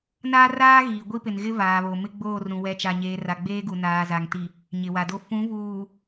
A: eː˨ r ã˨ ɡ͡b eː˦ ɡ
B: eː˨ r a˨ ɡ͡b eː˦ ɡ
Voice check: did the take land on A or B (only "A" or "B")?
B